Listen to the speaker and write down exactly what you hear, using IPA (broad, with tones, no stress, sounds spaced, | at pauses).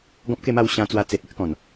ɡ ɔ̃˦ p̚ k e˥˧ m a˥˧ w ɕ ã˧ t͡s w a˧ t͡s e˨ t̚ e˦ ʔ k ɔ̃˨˩ n